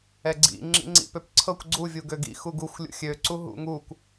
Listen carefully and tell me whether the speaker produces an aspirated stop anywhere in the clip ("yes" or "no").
yes